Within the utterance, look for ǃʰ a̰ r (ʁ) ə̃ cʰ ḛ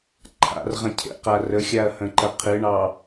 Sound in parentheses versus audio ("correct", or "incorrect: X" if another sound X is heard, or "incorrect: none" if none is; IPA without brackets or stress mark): correct